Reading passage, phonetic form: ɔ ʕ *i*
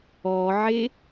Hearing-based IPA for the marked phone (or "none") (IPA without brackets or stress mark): e